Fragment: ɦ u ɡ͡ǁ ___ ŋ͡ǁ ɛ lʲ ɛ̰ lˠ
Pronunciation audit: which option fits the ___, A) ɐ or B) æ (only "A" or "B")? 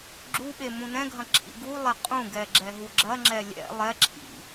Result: A